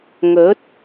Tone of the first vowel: rising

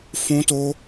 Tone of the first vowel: high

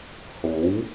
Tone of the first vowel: rising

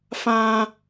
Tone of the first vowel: high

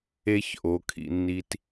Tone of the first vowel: high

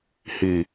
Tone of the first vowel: low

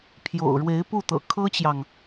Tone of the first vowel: low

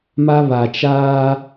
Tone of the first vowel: high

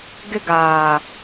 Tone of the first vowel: high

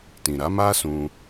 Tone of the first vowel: low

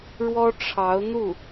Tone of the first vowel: high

